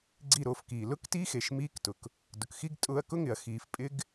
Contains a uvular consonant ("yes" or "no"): no